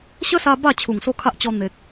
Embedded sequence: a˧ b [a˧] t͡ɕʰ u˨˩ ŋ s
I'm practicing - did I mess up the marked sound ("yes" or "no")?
yes